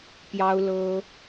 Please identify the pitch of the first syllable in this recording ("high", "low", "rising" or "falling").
high